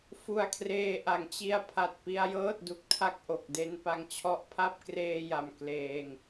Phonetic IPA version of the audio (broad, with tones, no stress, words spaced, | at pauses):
fu˧a̯kʰreː˧ʔa˨˩ŋt͡ɕi˧a̯ pʰa˨˩t̚pi˧a̯jɤː˥˩t̚ du˨˩k̚tʰa˥˩k̚ʔo˨˩k̚ de˧npa˧ŋt͡ɕʰɔ˦˥ʔ pʰa˥˩p̚kreː˧ ja˧mkleː˧ŋ